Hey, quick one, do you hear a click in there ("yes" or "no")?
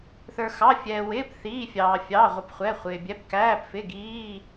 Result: no